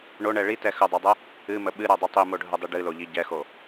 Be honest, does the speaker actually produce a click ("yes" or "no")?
no